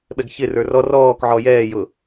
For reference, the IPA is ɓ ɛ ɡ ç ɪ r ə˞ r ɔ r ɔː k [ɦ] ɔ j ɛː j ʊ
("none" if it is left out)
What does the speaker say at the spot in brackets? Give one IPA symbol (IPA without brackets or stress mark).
ʕ